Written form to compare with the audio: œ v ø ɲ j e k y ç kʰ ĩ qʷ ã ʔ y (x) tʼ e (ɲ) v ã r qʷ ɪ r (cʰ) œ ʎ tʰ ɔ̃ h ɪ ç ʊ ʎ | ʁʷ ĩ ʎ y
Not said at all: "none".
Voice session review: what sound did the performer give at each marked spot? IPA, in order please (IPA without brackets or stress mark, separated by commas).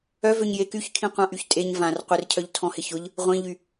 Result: ç, ɲ, cʰ